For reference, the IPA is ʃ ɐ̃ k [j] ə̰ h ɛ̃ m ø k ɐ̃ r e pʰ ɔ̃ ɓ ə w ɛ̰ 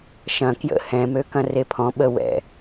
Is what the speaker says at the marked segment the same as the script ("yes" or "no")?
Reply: yes